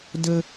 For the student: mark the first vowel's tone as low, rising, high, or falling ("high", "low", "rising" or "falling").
high